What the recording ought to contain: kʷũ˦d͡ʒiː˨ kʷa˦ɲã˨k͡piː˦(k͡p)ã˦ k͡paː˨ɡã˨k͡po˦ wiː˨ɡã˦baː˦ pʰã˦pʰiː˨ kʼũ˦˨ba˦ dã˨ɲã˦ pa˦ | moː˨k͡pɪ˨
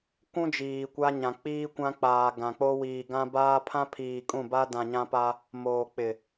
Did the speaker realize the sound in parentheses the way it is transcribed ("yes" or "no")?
no